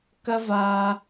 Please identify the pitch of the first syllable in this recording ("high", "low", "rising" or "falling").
high